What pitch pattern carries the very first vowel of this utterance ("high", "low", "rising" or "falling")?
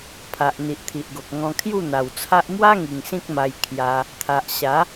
low